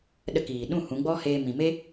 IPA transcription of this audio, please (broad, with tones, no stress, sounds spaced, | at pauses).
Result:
ɗ ə˧ k iː˨ ɗ ũ˦˨ h ũ˨˦ ɡ͡b ɔ˦ h eː˧ m ĩ˨ m e˦